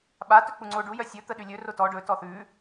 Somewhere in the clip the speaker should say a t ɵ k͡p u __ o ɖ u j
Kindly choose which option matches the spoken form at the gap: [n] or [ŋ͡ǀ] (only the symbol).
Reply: ŋ͡ǀ